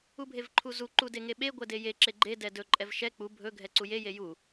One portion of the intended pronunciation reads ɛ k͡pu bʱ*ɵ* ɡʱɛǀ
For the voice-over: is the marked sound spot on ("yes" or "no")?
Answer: yes